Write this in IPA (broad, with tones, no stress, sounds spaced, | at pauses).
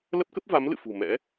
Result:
l ə˦˥ p̚ k ə˦˥ p̚ v a˨˦ m l ɨ̰˧˨ f ṳ˨˩ m ɛ̰˧˥